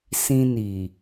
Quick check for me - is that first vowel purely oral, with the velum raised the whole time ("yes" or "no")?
no